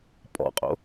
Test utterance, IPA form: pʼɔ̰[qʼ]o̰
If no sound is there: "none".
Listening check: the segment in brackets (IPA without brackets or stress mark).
qʼ